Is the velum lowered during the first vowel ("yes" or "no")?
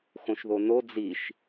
yes